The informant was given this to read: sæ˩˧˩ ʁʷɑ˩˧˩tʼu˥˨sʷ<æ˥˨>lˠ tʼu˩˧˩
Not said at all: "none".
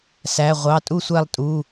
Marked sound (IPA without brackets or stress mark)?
æ˥˨